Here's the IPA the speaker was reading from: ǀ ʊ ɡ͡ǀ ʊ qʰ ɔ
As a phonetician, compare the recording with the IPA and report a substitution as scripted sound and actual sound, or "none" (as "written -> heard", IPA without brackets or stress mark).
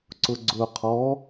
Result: none